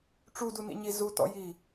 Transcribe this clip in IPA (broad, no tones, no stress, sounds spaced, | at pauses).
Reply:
ʈ͡ʂ u d u n ḭ ɲ i z u t ɔ̰ j i